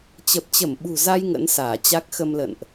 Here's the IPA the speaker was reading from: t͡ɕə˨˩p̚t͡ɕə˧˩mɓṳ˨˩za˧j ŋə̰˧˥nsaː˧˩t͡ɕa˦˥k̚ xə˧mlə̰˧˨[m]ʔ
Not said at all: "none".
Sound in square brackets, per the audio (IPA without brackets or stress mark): n